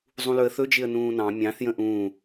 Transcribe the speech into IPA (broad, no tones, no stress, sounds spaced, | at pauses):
zˤ ũ l ɵ ə̯ θ ɵ d͡ʒ ɪ ə̯ n ũː n ɑ̃ mʲ ɑ̃ θ j ə̃ ʔ ũː